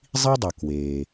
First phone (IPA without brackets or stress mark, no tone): zˤ